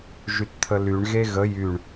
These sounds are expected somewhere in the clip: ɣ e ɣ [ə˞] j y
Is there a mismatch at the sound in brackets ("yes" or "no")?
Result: yes